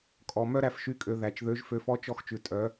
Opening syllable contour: low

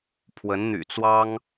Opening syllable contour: rising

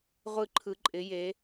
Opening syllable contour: high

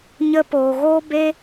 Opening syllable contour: high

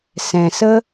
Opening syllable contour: low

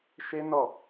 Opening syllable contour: high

